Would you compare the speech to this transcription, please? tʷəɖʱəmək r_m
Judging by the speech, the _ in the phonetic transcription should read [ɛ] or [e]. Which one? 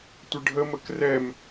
ɛ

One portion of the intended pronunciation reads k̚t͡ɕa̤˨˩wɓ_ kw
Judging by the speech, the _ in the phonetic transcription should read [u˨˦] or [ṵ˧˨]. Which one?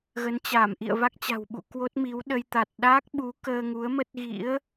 ṵ˧˨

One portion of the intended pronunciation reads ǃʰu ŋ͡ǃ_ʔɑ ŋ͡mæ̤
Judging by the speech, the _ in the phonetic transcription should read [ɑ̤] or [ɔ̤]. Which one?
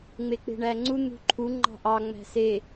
ɑ̤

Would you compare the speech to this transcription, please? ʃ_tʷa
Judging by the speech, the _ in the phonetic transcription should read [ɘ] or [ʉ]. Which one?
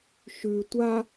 ʉ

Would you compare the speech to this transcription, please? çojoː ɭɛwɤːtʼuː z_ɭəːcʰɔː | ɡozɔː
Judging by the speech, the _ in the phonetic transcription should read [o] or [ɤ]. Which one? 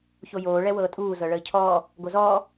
ɤ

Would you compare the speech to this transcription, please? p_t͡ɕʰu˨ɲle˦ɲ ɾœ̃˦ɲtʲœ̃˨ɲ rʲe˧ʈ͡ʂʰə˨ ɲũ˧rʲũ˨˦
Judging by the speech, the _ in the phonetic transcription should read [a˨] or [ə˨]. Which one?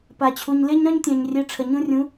a˨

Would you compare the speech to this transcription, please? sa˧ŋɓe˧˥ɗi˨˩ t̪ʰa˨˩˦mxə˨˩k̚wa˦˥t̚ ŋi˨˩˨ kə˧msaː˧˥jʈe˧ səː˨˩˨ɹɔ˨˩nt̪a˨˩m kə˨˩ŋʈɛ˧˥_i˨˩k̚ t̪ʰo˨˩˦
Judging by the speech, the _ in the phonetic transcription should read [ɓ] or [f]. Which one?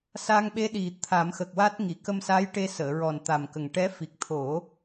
f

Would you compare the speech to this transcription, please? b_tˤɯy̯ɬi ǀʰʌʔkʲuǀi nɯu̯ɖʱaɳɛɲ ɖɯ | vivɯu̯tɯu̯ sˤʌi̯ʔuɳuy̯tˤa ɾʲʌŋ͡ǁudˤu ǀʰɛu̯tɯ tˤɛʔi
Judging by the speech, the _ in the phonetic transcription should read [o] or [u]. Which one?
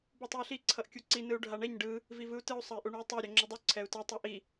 u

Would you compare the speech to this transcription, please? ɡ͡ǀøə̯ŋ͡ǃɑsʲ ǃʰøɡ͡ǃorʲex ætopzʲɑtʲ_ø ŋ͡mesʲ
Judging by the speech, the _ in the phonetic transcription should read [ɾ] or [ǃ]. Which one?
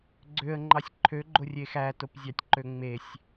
ǃ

